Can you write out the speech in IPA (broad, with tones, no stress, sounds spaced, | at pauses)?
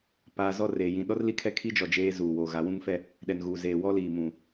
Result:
p aː˨ z ɔ˦˨ r eː˨ j ĩ˨ ɗ ɔ˦ r l i˦˨ kʰ ɛ˦ kʰ i˦ d͡ʒ ɔ˨ d͡ʒ eː˦ z uː˨ w oː˨ ɣ a˨˦ w ũ˦ ŋ f ɛ˦ | ɗ ɛ˨ n ɣ uː˨ z eː˨ w ɔ˦ l iː˨ m ũ˨